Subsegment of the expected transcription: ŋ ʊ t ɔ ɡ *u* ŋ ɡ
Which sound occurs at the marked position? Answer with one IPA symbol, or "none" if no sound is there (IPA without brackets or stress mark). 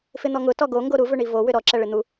o